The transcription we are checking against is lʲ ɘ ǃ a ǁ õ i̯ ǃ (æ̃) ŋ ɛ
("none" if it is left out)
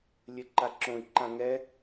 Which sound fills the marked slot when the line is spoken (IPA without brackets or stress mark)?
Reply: ã